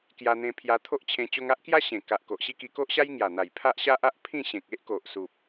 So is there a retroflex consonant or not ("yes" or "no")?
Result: no